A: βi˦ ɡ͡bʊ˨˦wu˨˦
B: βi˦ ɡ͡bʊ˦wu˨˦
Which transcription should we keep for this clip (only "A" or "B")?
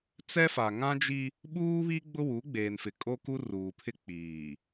B